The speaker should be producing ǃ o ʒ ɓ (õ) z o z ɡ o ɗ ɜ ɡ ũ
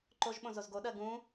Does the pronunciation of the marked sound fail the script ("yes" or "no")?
no